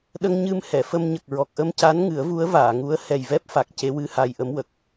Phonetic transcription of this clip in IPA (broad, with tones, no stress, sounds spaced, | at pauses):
ɗ ə˧ ŋ ɲ ɨ˧ m h ɛ˨˩˨ f ə˧ m ɲ ə˨˩ k̚ ɹ ɔ˨˩ k̚ ʔ ə˧ m c a˧˥ n ŋ ɨ˨˩˦ ə̯ v u˧˥ ə̯ v aː˨˩˨ ŋ u˧˥ ə̯ h ɛ˨˩ j v ɛ˦˥ p̚ f a˨˩ k̚ c e˧˥ w ɨ˧˥ h a˧ j ʔ ə˧˥ m w ə˨˩ k̚